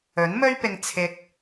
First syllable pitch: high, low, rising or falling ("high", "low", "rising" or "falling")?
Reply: rising